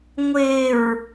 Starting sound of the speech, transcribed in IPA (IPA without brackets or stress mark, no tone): ŋʷ